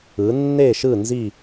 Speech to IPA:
ɯ˩˧nːe˦˨ʃɯ˦˨ nzi˦˨

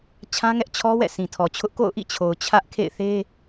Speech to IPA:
t͡ɕʰã˦ŋɛ˦ʔ t͡ɕʰɔ˦wɛ̰˦˨ sĩ˨tʰɔ˨t͡ɕʰʊ˦ʔ ko̰˦˨ʊ̯ʔḭ˦˨t͡ɕʰo˨ʊ̯ t͡ɕʰä˦ʔkʰḛ˦˨ɪ̯θe˦

